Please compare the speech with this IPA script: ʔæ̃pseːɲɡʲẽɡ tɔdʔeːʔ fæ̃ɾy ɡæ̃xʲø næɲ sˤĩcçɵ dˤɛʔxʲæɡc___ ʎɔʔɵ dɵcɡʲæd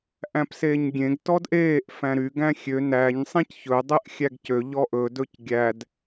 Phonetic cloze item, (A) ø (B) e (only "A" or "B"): A